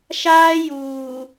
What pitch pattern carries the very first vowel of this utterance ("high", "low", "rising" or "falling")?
high